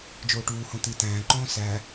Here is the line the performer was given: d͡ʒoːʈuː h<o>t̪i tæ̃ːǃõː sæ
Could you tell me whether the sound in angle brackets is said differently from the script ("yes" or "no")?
yes